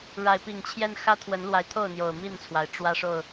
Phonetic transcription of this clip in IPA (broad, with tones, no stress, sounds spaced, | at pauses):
ɻ a˨˦ ɪ̯ p i˨˩ ŋ t͡ɕʰ j ɛ˦ n x ä˦ t̪ʰ w ə˨˦ n l w a˨˦ ɪ̯ t̪ʰ o˥˨ ʊ̯ n̪ j o˨˩ ʊ̯ m i˥˨ n t͡sʰ w a˩ ɪ̯ ʈ͡ʂ w ä˦ ʂ o˥˨ ʊ̯